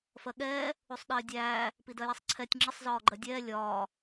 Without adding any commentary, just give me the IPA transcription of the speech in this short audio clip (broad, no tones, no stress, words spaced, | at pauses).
fɜɠɛː | usˤɗɪːdʲæː | pidɜjɛsˤǀʰɛtʲ ŋ͡ǁɪsˤ zɒːɡ͡ǃɜdʲɛː lʲɒː